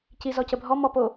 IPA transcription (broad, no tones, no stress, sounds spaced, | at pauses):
c i z ɔ c ə bʱ ɔ m ɔ p o